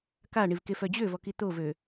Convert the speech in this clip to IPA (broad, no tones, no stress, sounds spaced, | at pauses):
k a ɳ i v k e f œ d͡ʑ ø v ɔ k i t̪ o v ø